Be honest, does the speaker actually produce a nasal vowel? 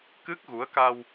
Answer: no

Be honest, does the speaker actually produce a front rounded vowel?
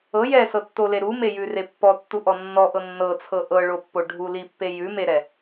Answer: no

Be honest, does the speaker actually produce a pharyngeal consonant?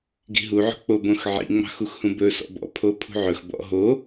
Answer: yes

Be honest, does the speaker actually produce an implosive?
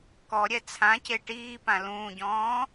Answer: no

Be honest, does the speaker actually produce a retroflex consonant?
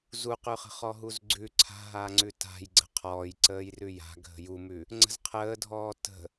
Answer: no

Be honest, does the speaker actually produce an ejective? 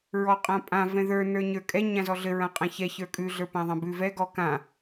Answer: yes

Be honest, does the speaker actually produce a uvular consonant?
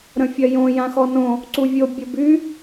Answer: no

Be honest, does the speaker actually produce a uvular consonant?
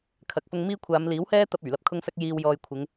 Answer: no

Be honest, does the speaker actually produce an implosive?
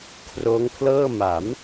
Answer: no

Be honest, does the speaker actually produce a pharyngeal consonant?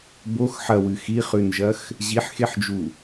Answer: yes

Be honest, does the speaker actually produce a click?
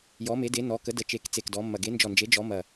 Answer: no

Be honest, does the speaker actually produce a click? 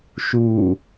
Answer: no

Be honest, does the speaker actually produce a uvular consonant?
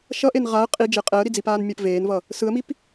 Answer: yes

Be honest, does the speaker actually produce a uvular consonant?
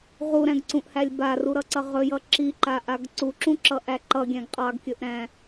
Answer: yes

